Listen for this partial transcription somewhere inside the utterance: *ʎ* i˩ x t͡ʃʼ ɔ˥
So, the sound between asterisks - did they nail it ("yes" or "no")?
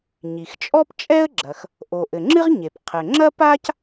no